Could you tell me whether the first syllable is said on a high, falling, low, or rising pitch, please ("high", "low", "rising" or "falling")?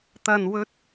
low